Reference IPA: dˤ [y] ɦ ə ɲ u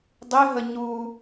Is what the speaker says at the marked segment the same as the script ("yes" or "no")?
yes